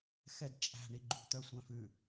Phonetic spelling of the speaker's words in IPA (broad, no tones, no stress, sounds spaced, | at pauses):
x ɛ d t͡ʃʼ æ̤ ɳ i ɡ͡ǃ ṳ t̪ œ sʷ œ̃ f ʉ